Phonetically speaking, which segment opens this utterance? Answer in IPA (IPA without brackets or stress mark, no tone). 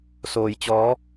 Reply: s